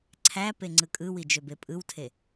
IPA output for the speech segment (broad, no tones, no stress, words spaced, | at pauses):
ǀʰæpe ŋ͡ǀɯkʼɯwi d͡ʒøbepʼɯwtʰe